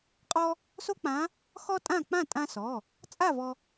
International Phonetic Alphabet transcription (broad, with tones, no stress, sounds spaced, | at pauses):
qʼ ɔ˥ | s o˥ k͡p ã˧˥ | x ɔ˥ tʼ ã˥˨ k͡p ã˥˨ tʼ ã˧ s ɔ˩˧˩ | t͡sʼ a˥˨ v ɔ˧